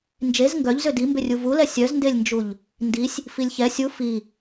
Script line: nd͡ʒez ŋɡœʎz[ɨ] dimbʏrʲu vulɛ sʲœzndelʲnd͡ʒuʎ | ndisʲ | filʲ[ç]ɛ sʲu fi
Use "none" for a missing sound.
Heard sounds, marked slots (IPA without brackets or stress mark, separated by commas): ʏ, ç